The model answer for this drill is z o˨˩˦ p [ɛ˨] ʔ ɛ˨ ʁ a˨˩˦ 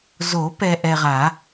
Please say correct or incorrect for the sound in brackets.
correct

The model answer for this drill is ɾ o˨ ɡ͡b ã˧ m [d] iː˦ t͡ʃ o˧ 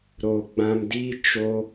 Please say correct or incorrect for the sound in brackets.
correct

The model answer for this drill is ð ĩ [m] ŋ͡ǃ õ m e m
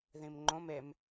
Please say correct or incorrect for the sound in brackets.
correct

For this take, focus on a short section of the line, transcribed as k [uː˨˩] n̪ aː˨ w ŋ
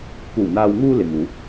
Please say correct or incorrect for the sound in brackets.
correct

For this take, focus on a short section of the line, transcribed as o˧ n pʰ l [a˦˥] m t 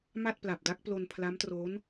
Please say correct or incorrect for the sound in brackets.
correct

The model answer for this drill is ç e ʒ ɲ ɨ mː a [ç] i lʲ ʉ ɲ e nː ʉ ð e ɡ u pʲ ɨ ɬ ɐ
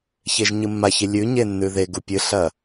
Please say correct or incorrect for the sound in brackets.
correct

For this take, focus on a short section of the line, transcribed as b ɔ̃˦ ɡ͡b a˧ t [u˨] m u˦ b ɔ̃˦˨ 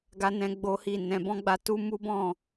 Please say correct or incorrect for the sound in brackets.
incorrect: u˦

